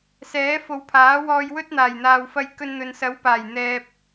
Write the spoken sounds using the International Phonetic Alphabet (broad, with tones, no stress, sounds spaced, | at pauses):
s ɛː˨˥ f o˨˧ w pʰ aː˨˥ w ɔː˧ j w ɵ˥ t̚ n̪ aː˨˩ j n̪ aː˨ w f ɐ˧ j k ɵ˧ n n̪ ɵ˨ n s ɐ˨˥ w p aː˨˩ j n̪ ɛː˨ p̚